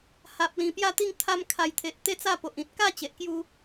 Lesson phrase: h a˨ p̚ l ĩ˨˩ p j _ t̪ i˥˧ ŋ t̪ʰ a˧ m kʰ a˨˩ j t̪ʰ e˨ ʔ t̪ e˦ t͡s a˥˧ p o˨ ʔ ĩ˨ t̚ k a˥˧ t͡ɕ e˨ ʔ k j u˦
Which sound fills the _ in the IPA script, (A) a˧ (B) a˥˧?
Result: B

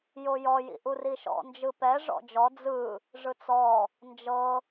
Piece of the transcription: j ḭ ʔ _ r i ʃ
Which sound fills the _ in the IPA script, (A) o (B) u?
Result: B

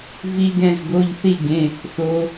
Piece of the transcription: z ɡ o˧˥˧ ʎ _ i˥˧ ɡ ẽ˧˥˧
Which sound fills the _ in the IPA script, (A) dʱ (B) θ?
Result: B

